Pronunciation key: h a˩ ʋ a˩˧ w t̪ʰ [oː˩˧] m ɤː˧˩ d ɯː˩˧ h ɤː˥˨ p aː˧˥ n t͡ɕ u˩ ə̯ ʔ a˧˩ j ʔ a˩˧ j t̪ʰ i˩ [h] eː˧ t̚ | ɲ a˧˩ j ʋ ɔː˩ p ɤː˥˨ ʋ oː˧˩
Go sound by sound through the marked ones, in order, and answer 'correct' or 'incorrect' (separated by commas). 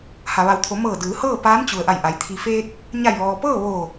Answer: incorrect, incorrect